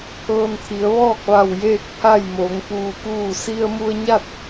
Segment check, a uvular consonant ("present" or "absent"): absent